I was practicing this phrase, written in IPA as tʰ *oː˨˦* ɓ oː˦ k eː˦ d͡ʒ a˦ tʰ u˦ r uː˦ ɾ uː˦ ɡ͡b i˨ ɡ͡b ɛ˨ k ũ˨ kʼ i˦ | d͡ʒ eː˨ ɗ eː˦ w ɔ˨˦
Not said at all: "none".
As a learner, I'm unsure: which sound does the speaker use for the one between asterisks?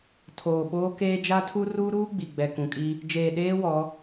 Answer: oː˨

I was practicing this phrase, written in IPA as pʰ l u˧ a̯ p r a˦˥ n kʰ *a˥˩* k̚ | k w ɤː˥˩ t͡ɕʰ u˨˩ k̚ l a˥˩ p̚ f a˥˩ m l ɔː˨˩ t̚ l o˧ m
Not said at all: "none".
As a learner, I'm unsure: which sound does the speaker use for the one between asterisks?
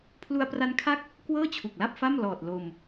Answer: a˥˩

